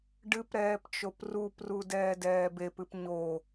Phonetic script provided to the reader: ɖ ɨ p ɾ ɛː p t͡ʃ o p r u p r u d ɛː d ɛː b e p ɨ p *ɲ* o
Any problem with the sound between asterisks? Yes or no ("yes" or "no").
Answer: no